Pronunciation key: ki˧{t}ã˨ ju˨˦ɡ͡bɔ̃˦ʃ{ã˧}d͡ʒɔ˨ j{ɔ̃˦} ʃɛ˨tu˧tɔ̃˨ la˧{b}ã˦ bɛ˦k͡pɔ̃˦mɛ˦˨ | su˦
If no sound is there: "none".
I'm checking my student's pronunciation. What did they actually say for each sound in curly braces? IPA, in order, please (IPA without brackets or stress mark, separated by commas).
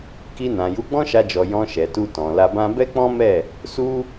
n, a˧, ɔ̃˧, b